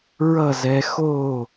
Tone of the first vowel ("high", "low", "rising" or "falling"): falling